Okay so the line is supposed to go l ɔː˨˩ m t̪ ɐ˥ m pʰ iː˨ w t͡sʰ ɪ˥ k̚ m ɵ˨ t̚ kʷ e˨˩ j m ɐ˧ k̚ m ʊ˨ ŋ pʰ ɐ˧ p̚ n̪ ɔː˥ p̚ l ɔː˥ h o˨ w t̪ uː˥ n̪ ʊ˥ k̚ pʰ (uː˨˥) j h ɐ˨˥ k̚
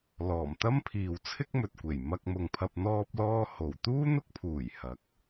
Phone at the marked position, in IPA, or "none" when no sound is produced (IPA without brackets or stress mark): uː˨˩